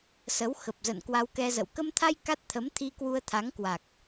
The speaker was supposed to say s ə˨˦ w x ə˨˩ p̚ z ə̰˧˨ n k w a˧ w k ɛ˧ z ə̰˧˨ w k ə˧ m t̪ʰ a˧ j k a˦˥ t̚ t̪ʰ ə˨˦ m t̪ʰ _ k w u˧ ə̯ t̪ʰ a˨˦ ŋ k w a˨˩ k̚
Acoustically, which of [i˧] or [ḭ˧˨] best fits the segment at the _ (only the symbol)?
i˧